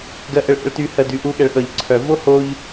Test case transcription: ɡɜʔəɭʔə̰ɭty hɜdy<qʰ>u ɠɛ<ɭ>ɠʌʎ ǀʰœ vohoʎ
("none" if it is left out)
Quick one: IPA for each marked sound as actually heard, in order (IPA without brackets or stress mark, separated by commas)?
ʔ, ɭ